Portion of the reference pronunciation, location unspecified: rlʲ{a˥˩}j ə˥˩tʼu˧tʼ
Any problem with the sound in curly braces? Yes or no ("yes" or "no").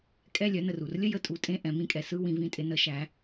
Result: yes